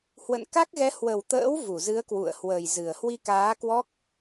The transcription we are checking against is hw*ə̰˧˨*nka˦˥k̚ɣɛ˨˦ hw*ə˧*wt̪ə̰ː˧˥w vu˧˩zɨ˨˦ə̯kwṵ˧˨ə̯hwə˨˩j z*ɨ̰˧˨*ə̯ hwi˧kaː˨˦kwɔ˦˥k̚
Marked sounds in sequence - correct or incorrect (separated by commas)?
correct, incorrect, incorrect